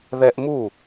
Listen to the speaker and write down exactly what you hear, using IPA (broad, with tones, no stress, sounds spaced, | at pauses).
ð ɛ˧ ʔ m u˥˩